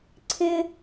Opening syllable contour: high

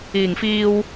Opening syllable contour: low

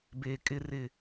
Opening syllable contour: low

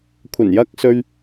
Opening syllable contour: low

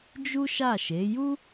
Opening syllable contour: high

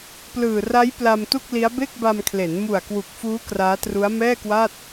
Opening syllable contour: low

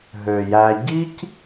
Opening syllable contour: low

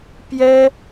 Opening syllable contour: high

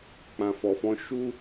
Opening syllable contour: low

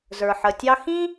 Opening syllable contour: low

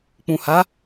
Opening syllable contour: low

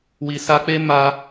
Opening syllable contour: low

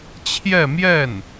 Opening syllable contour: falling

